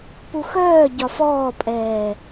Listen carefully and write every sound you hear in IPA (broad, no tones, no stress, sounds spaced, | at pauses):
p u x œː ɟ ɒ f ɔː pʼ ɛː